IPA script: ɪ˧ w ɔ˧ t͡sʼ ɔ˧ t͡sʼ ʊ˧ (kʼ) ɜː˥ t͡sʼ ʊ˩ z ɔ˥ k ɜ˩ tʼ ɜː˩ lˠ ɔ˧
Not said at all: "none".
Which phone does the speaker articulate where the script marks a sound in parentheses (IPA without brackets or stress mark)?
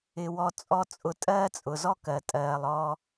tʼ